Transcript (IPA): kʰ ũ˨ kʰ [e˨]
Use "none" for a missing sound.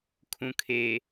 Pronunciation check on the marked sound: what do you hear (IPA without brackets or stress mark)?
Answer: e˨